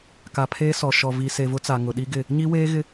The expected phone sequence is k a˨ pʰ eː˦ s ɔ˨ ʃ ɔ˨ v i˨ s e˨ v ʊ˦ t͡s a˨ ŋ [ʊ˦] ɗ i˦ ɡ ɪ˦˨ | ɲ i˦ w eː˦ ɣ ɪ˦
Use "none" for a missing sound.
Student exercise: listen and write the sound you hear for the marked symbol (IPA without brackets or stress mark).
ʊ˨